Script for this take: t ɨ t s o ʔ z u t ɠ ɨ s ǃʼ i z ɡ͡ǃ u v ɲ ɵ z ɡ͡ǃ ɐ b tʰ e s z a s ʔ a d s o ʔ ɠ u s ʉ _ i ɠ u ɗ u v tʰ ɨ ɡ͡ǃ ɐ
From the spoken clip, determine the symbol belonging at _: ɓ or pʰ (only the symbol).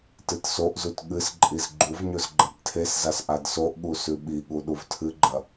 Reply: ɓ